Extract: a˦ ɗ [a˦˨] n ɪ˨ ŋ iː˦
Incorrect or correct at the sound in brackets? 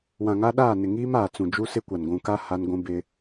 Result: incorrect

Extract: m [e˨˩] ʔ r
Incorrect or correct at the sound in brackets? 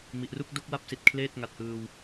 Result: incorrect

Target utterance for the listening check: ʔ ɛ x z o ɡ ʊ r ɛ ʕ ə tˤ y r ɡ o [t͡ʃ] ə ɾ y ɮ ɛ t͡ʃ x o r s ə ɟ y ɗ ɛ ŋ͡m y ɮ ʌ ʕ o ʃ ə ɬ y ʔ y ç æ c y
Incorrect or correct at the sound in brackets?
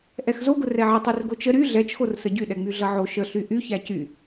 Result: correct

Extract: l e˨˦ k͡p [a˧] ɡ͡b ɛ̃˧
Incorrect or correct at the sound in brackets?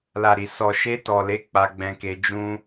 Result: correct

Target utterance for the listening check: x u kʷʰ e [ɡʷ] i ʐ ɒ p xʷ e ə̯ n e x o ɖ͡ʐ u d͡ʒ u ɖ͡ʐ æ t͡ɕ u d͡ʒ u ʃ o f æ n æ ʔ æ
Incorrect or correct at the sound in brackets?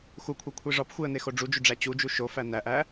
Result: incorrect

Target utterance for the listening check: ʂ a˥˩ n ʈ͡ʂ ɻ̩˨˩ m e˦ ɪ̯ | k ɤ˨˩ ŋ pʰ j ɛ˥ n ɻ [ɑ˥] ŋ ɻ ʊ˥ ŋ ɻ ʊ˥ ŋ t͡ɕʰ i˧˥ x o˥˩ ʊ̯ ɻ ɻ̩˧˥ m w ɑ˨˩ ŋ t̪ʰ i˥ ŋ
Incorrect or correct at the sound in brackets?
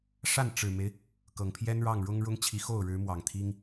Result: incorrect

